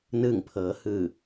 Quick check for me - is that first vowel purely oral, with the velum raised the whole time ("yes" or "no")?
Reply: yes